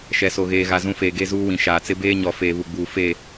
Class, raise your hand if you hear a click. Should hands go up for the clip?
no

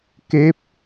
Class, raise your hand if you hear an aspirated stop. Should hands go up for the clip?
no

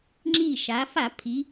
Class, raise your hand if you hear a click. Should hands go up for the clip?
yes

